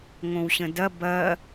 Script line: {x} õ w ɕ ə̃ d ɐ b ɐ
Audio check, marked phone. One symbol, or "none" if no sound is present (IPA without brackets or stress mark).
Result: ŋ